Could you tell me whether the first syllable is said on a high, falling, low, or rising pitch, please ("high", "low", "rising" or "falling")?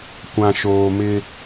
low